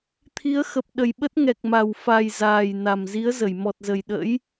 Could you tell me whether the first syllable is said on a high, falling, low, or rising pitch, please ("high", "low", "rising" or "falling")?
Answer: rising